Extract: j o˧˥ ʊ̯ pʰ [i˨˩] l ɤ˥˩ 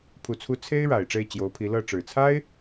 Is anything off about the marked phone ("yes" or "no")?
yes